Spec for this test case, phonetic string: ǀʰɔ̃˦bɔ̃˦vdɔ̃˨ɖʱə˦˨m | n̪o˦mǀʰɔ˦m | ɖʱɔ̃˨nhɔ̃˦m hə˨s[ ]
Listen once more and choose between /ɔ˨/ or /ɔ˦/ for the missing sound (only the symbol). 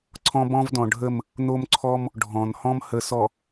ɔ˨